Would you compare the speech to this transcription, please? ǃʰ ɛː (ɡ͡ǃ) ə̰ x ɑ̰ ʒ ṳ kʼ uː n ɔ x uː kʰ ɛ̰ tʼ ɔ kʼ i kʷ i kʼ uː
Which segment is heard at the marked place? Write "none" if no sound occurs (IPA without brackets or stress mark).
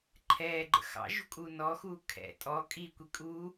ɡ͡ǃ